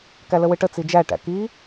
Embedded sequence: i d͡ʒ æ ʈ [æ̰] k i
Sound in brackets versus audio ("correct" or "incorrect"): correct